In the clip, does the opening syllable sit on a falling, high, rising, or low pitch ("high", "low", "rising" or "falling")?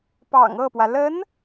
low